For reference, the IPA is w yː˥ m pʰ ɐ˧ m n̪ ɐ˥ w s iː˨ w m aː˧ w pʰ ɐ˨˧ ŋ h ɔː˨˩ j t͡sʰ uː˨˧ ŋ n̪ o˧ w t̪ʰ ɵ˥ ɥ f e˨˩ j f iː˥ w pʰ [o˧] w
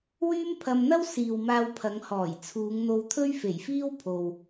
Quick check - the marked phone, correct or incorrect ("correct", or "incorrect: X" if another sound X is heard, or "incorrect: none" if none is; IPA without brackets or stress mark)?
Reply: incorrect: o˨